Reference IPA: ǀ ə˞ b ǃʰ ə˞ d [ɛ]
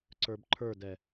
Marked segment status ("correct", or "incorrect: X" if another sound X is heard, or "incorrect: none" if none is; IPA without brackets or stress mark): correct